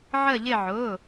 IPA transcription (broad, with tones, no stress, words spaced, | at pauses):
ʕə˦˨ʎɪ˦˨ ʕʊː˩˧˩